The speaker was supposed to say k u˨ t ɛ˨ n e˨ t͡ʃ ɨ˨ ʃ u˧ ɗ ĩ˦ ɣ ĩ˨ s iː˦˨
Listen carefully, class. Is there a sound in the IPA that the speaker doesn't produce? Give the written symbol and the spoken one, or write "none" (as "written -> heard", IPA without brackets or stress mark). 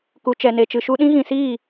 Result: t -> t͡ʃ